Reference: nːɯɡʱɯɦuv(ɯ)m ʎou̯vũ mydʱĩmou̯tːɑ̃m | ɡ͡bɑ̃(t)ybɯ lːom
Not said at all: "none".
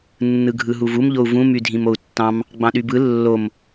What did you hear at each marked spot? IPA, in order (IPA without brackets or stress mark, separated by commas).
u, ɗ